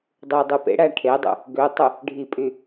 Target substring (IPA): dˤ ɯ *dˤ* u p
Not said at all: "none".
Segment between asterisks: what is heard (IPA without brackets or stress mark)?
dˤ